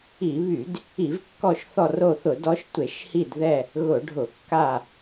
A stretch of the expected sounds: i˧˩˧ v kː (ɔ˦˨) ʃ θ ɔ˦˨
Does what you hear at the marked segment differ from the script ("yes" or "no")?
no